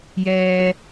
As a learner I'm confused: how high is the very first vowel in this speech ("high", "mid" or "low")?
mid